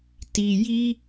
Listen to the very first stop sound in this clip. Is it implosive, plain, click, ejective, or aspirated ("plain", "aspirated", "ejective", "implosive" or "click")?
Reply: plain